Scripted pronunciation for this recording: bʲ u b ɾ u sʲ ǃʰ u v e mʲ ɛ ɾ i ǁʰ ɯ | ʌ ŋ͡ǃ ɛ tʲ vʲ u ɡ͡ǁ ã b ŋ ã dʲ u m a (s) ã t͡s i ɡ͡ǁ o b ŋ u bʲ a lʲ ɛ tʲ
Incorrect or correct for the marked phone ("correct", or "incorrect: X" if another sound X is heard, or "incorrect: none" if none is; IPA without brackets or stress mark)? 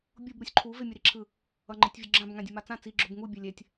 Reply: incorrect: t͡s